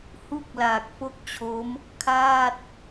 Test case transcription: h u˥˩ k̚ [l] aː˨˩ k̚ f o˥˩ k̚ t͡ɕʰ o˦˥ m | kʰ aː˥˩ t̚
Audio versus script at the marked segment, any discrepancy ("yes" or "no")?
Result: no